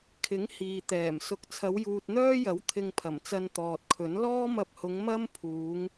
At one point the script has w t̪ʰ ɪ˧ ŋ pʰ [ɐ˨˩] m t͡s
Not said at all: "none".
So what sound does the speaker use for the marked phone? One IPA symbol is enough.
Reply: ɐ˨˩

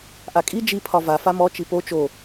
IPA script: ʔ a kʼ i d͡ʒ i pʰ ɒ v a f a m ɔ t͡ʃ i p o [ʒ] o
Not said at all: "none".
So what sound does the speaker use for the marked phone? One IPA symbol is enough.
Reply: t͡ʃ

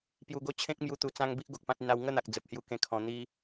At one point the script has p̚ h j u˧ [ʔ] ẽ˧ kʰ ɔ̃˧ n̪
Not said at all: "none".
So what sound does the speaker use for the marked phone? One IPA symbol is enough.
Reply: k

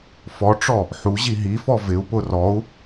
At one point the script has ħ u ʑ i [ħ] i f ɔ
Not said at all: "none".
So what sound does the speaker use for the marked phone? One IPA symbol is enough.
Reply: ɦ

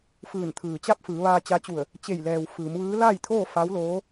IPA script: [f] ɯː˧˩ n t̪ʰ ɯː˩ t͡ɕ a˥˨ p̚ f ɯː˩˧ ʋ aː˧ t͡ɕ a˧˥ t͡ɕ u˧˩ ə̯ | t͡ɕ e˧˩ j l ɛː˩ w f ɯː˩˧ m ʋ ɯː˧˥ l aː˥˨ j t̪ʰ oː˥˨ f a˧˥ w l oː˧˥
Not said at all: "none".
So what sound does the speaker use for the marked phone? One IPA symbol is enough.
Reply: f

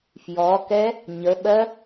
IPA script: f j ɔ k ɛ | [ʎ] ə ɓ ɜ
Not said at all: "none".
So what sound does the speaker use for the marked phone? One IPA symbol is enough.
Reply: ɲ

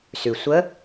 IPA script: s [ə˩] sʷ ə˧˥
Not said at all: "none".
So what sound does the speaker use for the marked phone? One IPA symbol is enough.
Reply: ʉ˩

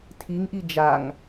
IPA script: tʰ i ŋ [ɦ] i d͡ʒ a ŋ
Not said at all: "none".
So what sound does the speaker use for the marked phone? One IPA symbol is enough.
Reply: ʔ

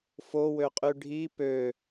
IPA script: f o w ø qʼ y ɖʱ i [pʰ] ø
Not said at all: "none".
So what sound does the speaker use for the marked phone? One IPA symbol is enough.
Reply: p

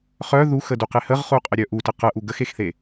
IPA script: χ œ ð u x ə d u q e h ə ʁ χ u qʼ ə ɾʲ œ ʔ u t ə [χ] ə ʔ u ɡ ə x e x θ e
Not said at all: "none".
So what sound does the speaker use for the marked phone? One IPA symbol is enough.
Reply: q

